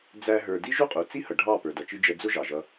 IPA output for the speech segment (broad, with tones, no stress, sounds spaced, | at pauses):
d͡z æ˦ ɦ ə˞˧ d i˦ ʒ u˦ qʼ u˨ t͡s i˦ h ʌ˨ ɖʱ ɑ˦˨ p ə˞˨ d ʌ˨ t͡ʃ i˧ d͡ʒ ɛ˧ d͡z ʊ˦ ʒ ɑ˨ ʒ ʌ˧